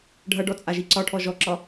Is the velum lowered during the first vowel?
no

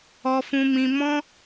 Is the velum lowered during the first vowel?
no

